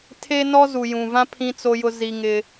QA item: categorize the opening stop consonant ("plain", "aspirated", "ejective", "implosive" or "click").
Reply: aspirated